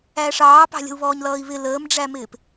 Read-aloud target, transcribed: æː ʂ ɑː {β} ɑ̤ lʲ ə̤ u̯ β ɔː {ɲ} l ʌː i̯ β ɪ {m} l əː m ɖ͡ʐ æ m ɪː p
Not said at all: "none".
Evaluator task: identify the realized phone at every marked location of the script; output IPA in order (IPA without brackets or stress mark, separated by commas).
p, ɲ, none